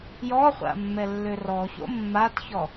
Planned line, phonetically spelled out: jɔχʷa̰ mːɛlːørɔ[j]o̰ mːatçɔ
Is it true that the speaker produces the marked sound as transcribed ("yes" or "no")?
no